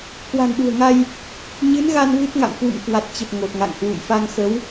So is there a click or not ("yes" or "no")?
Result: no